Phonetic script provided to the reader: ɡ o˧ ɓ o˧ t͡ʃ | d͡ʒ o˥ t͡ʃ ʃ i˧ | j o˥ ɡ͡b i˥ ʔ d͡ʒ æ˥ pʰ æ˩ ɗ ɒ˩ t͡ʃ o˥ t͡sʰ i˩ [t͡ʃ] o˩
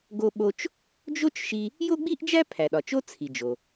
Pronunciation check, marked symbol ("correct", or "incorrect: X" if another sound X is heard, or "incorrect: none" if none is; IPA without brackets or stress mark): incorrect: d͡ʒ